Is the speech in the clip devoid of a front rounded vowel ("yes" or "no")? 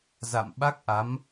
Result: yes